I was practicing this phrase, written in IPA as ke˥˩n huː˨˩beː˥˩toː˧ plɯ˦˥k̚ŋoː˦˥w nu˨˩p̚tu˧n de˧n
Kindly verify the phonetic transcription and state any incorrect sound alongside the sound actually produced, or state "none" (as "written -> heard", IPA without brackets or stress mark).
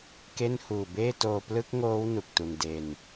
p̚ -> k̚